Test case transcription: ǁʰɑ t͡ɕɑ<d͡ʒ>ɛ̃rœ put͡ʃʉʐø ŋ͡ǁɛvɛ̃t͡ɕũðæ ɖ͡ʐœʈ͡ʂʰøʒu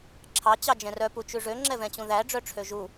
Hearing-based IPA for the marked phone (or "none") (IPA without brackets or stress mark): d͡ʒ